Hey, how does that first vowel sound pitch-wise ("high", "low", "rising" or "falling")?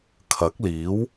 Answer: rising